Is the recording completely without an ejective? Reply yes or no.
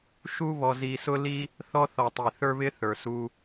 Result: yes